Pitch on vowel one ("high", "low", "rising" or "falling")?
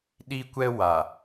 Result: high